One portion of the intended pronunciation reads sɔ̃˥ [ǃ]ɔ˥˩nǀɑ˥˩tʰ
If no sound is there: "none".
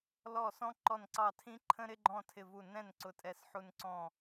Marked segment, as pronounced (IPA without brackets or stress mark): ǃ